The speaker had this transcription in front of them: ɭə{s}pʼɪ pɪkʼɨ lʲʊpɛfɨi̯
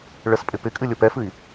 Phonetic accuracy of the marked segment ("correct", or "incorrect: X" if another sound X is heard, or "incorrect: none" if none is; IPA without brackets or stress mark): correct